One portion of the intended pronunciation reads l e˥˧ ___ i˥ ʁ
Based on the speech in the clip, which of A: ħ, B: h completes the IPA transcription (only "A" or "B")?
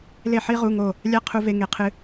A